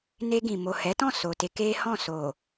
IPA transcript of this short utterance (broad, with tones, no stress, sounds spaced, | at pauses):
n e˧ ɡ ĩ˨ m o˨ h ɛ˨˦ t ɔ̃˦˨ s o˨ t e˧ k e˦ h ɔ̃˦˨ s o˨